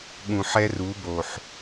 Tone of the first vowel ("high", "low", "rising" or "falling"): low